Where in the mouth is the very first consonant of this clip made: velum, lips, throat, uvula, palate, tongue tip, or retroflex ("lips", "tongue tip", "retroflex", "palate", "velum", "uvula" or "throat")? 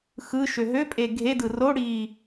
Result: velum